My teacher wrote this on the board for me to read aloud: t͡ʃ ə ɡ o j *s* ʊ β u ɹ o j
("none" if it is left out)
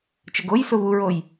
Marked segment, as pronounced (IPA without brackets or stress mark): s